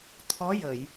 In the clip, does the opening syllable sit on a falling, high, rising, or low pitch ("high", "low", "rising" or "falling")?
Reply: rising